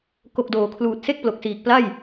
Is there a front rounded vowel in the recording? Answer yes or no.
no